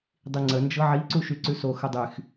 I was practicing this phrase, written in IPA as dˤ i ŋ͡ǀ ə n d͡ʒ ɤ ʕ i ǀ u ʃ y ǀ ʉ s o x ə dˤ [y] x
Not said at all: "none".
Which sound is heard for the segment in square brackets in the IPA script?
y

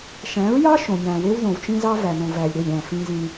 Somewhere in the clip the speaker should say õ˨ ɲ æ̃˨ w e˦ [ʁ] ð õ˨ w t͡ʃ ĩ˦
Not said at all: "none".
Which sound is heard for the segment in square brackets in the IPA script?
w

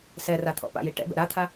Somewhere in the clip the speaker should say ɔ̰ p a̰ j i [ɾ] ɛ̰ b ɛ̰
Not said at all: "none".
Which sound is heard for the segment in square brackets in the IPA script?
ʈ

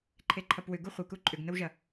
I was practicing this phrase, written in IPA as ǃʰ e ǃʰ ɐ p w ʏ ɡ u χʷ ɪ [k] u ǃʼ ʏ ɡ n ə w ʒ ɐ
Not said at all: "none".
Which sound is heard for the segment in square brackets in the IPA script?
k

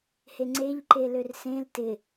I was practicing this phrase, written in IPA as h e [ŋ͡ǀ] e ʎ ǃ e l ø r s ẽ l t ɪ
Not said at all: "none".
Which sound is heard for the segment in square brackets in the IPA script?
ŋ͡ǀ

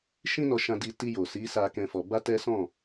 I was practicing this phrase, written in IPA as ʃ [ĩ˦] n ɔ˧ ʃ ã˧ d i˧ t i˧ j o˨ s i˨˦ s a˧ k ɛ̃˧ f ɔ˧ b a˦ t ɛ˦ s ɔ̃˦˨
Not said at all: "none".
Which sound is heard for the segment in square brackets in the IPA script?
ĩ˦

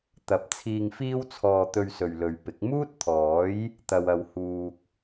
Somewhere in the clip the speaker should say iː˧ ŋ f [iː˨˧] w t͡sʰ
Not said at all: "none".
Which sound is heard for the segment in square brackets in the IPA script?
iː˥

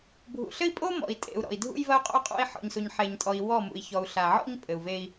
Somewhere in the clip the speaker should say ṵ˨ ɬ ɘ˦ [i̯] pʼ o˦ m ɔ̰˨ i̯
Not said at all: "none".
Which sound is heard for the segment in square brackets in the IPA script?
i̯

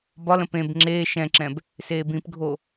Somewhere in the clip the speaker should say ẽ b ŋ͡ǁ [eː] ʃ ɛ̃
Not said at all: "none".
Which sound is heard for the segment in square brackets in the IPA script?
eː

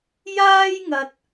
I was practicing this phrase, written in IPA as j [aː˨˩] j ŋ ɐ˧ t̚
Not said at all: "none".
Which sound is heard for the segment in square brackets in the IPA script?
aː˥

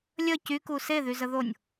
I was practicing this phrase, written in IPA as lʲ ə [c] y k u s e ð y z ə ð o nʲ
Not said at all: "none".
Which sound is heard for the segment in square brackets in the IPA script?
c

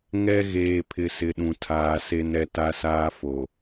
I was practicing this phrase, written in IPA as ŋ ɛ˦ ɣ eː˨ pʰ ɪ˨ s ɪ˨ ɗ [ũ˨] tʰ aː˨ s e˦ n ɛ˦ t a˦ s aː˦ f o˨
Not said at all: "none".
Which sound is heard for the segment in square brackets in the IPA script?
ũ˨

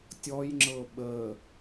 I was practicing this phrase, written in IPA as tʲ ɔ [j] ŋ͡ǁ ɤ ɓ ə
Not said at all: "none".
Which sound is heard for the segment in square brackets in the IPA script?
j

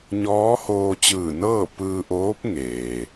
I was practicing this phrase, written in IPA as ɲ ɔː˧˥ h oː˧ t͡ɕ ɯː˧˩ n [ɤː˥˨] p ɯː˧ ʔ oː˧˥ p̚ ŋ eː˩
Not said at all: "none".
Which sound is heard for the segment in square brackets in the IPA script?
ɤː˥˨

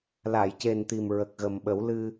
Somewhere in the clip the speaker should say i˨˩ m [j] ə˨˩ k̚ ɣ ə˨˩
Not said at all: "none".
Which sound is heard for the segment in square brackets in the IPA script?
ɹ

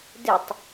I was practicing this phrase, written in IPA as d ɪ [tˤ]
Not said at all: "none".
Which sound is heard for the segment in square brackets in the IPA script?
tˤ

